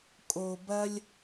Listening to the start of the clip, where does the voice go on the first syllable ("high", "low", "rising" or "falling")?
low